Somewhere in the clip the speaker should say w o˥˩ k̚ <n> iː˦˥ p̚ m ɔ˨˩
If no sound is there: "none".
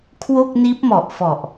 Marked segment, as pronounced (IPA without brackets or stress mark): n